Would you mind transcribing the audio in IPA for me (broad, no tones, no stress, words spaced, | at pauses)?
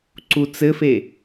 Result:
ǀut͡sɘfe